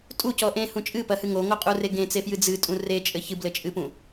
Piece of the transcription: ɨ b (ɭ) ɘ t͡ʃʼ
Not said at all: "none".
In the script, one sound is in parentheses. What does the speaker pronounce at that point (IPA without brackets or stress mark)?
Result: l